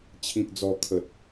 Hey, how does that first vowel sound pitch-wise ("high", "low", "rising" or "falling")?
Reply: low